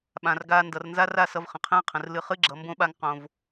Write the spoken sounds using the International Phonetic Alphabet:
ɓ ã˨ r ɡ aː˧ n d ʌ˨ r n z a˦ r a˦˨ s ʌ˧ v χ ə̃˨ qʰ ɛ̃ː˦ qʰ ə̃˨ r l ɨ˧ χ ɨ˦ ɡ͡ǁ ʌ˨˦ m b õ˦ ɓ a˦ ŋ q õ˧ v

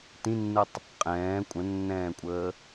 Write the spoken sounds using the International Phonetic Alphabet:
t ĩ nː ɯ tˤ | qʼ ɛ̃ː kʷʼ ə̃ nː ɛ̃ː kʷʼ əː

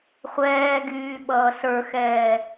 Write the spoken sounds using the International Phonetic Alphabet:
χʷ ɛː ɡ yː ɓ ʌː s ə˞ x ɛː

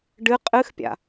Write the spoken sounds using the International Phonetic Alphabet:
ɖ ɨ qʼ ɨ x pʲ a̰

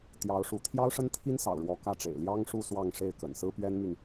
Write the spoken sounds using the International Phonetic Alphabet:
t̪ j ɑ˧˥ ʊ̯ ʂ u˧˥ t̪ʰ j ɑ˥ ʊ̯ ʂ ə˥ n t̪ʰ i˥ n s ɑ̰˨˩ ʊ̯ ɻ w ɔ˧˥ k ä˥˩ ʈ͡ʂ ḛ˨˩ ɪ̯ l j ɑ˥ ŋ ʂ u˥˧ s w ɑ˥˧ ŋ ʂ e˥˩ ɪ̯ k ə̰˨˩ n s ɹ̩˥ p ɥ ɛ˥ n m y˨ n

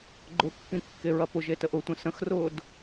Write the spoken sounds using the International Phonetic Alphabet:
ɡ͡ǃ ʊ kː ĩ kː e ɹ ɐ p ʊ ʒ e t ə ʔ ʊ tʷ ə̃ s ə̃ x r ʊː d

